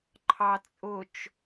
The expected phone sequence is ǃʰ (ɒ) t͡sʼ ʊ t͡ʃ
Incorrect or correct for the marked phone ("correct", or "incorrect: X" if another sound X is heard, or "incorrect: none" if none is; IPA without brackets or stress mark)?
incorrect: ɑ